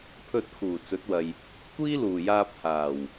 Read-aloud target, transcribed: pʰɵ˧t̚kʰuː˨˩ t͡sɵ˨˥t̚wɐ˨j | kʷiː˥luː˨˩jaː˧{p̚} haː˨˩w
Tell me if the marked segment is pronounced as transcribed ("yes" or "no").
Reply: yes